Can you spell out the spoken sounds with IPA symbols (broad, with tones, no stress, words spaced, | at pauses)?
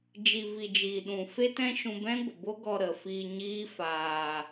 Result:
d͡ʒi˨vi˨ d͡ʒiː˨ɗũ˨ fe˦tɛ̃˦ʃũ˧ bɛ̃˦ɡʷə˨bo˦ɡɔ˧ ɾə˨fiː˧ɲiː˦ faː˧